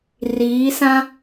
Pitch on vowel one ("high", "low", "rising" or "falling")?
rising